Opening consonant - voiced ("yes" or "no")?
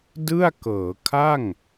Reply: yes